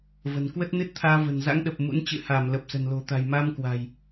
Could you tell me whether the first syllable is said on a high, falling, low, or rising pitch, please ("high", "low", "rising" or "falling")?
low